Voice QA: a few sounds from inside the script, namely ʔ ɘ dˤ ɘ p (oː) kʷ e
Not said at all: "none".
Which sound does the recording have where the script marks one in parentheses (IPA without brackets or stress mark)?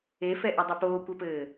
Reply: oː